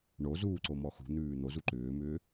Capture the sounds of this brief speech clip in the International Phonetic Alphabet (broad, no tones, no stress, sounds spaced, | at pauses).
ɳ o z uː ǀ o m ɔ x ṳ n̪ ʉː n̪ o z u ǃ ʏː m ʏː